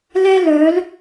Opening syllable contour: high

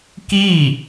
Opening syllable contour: falling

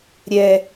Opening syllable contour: high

